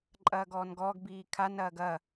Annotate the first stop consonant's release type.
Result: click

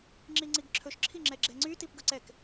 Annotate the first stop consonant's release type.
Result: click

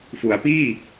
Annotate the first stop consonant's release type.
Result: plain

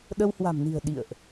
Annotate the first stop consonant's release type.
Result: implosive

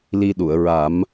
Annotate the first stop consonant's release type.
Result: implosive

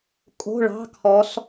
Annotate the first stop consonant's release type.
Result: ejective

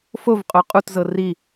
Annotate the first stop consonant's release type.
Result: ejective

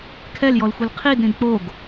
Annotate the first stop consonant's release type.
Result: aspirated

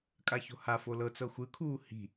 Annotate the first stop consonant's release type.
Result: ejective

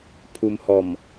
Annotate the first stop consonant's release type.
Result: aspirated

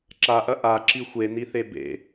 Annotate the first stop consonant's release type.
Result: click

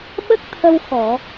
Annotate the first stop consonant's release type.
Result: implosive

